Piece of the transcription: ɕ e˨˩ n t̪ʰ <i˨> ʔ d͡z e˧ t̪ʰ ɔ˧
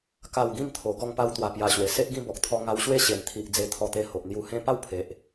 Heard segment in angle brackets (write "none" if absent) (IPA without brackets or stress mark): i˨